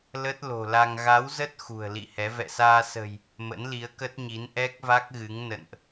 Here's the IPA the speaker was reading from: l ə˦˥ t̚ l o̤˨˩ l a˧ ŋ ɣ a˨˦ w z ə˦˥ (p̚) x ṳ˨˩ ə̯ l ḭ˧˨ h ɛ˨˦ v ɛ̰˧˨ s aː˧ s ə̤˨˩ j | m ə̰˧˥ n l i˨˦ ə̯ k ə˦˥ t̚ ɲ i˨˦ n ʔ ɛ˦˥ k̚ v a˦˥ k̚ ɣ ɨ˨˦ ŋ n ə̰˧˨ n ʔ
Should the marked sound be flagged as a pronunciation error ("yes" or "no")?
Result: yes